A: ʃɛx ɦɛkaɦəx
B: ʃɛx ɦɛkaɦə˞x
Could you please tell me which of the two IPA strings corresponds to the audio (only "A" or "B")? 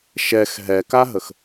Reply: A